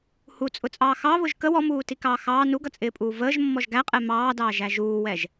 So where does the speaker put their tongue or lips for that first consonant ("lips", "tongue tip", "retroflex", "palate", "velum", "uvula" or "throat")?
throat